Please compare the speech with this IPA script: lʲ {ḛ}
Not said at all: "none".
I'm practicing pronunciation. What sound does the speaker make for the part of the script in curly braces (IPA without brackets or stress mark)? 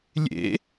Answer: ḛ